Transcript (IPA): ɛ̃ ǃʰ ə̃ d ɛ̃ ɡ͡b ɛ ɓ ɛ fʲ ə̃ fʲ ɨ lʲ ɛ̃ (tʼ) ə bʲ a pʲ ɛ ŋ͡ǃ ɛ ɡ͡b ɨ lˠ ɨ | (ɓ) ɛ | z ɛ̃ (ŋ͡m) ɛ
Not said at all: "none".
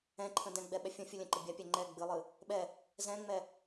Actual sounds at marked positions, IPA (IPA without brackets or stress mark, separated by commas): ǃ, ɓ, ŋ͡m